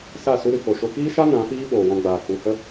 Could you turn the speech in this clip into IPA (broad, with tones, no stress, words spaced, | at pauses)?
sa˦˨ su˧ɾɨ˨ko˨ʃo˧ kiː˦ʃa˦ nã˨˦fiː˦ ɓoː˨ wɔ̃˧ɡ͡baː˨k͡pu˧hə˦